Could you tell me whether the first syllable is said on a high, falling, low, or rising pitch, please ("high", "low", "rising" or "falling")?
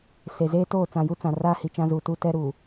low